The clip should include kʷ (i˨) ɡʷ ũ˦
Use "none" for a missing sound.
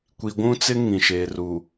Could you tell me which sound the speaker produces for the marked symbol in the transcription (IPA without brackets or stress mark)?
i˨